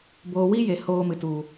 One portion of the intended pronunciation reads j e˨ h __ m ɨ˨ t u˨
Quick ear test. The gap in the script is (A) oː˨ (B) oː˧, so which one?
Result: B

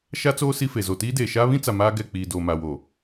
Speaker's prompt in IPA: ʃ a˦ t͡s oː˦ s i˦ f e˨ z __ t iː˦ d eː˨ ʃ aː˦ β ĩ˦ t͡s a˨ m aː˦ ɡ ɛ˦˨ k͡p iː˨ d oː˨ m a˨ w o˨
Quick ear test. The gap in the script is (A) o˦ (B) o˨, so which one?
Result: B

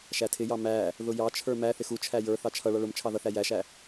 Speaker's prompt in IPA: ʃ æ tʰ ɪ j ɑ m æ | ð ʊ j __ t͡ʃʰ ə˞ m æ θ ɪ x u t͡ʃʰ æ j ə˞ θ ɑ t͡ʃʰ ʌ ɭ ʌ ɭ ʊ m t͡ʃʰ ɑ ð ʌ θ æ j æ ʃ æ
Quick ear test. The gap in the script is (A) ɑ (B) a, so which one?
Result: A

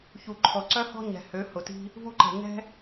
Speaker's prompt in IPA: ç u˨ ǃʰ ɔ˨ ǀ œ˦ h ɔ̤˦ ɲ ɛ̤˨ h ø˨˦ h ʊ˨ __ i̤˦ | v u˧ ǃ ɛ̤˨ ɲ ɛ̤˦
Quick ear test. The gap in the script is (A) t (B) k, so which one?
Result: A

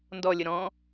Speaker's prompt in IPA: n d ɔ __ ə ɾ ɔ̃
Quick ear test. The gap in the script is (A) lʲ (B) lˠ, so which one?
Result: A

